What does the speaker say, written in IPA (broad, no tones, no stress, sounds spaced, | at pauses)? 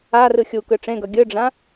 a r ɯ xʲ u k ɯ ʈ͡ʂ ẽ ɡ ʌ ɡʲ ɯ ɖ͡ʐ ã